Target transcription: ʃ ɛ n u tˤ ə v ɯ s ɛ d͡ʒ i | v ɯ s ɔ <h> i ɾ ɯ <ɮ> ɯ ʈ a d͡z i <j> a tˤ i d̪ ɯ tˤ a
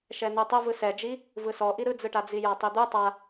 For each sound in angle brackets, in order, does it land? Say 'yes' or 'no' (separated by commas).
no, no, yes